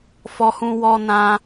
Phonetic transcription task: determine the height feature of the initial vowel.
mid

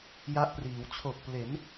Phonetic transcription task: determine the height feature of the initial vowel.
low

